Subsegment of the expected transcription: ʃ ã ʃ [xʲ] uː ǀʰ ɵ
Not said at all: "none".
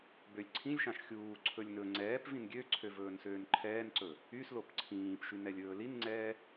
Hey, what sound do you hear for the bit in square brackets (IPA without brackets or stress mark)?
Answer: xʲ